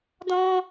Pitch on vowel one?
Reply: high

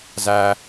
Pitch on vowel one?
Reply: high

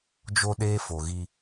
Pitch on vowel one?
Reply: high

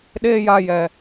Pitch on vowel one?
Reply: high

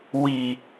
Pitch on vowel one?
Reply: low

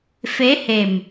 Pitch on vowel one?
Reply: rising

